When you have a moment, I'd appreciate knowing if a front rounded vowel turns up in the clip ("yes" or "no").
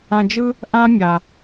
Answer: no